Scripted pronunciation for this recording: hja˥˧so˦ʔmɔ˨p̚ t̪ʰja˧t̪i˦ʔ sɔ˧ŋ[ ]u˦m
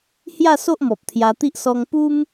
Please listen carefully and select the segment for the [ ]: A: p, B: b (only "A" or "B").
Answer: A